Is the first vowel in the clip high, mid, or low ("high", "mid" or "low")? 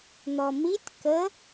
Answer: mid